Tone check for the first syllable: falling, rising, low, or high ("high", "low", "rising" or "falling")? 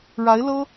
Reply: rising